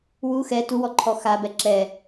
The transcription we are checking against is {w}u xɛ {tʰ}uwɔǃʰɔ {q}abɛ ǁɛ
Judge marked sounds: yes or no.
yes, no, no

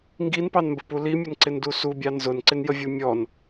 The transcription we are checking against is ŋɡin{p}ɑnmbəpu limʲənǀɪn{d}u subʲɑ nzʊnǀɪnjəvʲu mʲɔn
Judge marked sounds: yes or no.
yes, yes

